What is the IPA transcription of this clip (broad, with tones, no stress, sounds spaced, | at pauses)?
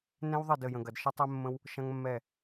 n ɛ̃˦ w ðˤ ɘ˦˨ d ə˦˨ j ə̃˧ ɡ ɐ˧ d ʃ ə˦ tˤ ɛ˦ mː ə̃˦ w | ʃ ɐ̃˦ ŋ mː ɛ˦˨